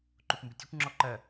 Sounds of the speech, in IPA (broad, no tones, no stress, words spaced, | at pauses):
ǃukʷmbɪtʲɛkʷ ŋ͡ǁɔǃɜ